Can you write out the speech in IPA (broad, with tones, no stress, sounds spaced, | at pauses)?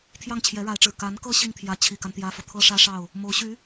t̪ʰ j ɑ˥˩ ŋ t͡ɕʰ j ɛ˧˥ ɻ a˧˥ ɪ̯ ʈ͡ʂ ɻ̩˨˩ k a˧˥ n k ɤ˥ ɕ i˥˩ ŋ t̪ʰ j ä˧˥ t͡ɕʰ i˨˩ k a˦ n t̪ j ä˥ f ɤ˨ t̪ʰ ɤ˥ ʂ ä˥ ʂ ɑ˥˩ ʊ̯ | m o˧˥ ʊ̯ ɕ y˧˥